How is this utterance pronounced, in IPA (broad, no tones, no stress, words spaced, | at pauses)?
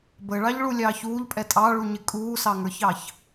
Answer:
bəɭɑʎɭulʲɑːç uːʎpʼɛ tʼɑɭuɲɪ kʼuːsɑŋə˞çɑç